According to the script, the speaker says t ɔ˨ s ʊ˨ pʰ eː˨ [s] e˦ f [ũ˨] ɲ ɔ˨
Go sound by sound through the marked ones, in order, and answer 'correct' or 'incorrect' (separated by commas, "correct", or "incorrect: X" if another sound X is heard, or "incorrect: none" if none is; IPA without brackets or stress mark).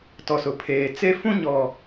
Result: incorrect: t͡s, incorrect: ũ˦